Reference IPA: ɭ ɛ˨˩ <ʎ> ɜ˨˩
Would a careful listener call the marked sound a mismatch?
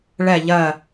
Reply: no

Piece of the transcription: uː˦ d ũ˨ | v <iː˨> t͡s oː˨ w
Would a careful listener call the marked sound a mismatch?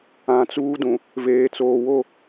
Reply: yes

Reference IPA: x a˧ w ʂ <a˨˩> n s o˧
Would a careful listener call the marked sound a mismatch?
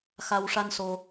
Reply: yes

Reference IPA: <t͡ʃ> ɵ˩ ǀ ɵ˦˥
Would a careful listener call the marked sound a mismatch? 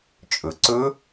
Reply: yes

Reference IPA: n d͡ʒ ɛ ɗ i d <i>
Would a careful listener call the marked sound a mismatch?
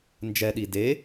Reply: yes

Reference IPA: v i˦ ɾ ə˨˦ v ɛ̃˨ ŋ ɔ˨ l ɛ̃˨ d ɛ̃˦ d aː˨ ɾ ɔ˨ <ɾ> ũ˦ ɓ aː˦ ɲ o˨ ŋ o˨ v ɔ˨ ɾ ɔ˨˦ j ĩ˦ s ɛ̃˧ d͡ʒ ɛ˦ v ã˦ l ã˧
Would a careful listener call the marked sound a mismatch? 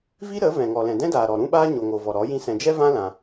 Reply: no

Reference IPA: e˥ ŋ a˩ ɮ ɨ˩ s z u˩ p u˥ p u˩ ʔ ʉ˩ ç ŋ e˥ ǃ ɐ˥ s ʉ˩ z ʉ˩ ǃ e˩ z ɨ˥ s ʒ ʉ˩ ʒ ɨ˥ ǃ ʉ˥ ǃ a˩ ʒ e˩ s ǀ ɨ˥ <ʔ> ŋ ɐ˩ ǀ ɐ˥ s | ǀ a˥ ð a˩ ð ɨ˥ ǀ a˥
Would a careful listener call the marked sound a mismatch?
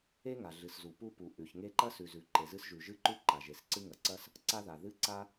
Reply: yes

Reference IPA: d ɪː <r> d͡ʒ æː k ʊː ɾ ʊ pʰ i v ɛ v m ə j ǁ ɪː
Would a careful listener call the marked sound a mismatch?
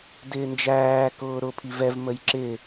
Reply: yes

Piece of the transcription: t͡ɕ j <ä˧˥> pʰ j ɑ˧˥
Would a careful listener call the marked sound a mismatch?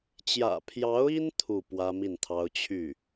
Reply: yes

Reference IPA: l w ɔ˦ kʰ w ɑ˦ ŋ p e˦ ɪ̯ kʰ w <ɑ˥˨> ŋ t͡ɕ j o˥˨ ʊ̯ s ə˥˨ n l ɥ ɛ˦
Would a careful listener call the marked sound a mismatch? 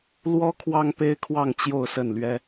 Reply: no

